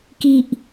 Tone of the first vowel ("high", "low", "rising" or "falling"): low